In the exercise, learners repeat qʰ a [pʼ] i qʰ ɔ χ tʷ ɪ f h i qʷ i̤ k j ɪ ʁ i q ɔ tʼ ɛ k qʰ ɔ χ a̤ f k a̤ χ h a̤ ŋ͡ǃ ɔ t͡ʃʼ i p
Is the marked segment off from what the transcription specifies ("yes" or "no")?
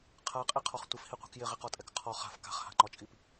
yes